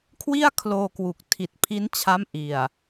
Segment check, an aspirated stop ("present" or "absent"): present